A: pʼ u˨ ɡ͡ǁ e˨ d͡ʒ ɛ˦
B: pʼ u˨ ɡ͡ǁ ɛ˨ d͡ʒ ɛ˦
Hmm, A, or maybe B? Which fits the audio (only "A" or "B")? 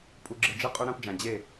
A